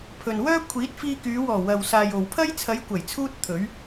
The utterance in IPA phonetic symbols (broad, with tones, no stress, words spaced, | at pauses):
pʰɵ˨nwœː˥ kʷʰiː˨˥t̚fiː˧kyː˨˧wɔː˨˩ wɐ˨wsaː˨jo˨wpʰɐ˥j t͡sʰɐ˨˧jkʷɐ˨˩jt͡sʰuː˧t̚ t̪ʰɵ˨˥ɥ